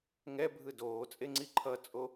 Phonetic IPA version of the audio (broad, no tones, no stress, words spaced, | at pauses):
ŋɛbʱɯ doːt͡sʼeŋ͡ǀi ǃʰʌt͡sʼo